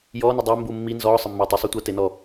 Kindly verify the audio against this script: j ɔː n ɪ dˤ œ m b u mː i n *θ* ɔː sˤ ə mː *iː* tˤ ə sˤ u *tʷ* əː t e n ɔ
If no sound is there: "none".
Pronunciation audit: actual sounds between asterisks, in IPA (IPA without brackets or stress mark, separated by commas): z, ɪː, tʷ